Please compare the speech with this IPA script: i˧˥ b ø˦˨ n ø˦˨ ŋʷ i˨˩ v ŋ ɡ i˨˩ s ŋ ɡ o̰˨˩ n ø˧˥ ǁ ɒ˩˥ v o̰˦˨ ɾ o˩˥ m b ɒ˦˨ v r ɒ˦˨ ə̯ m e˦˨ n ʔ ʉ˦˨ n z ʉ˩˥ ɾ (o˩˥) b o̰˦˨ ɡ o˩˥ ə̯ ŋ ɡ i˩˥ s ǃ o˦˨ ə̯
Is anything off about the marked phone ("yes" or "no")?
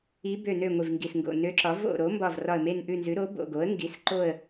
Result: no